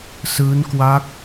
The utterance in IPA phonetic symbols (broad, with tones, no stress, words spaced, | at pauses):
sɯː˦˥nkwa˦˥k̚